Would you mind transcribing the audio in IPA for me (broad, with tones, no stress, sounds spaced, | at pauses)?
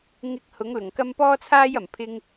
ŋ ɪ˧ k̚ h ʊ˨˥ ŋ l ʊ˨˩ ŋ k ɐ˥ m p ɔː˥ t͡sʰ aː˥ j ɐ˨˩ m pʰ ɪ˥ ŋ